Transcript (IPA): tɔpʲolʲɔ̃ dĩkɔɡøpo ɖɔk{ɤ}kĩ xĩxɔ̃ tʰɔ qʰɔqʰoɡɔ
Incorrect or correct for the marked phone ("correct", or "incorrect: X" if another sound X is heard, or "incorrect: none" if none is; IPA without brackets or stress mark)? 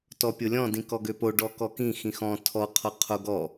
incorrect: ɔ